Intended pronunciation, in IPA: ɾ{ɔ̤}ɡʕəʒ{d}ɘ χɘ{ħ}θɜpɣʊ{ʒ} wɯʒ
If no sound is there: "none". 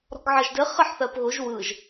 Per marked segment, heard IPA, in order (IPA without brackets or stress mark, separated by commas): ɔ̤, d, ħ, ʒ